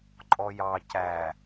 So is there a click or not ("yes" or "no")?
yes